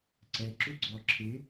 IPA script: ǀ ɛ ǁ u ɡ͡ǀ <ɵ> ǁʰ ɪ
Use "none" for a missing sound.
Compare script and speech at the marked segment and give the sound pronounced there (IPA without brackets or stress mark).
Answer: ɔ